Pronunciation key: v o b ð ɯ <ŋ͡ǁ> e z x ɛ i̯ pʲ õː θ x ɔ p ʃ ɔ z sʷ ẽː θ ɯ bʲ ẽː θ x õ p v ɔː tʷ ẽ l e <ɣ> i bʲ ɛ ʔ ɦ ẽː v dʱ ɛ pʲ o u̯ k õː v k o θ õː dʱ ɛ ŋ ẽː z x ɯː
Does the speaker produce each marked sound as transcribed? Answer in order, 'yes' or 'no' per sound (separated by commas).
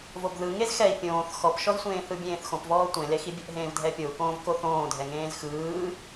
no, no